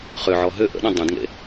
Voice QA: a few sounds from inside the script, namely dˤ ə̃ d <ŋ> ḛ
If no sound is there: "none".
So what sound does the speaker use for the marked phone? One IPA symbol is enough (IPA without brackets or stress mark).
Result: ŋ